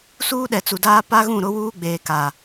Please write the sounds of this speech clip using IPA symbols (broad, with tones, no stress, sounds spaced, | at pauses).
s uː˦ ɗ ɛ˨ t͡s u˨ d aː˦ p a˦ ɣ ũ˦˨ ɾ ʊ˦ w uː˦ ɡ͡b eː˨ k a˨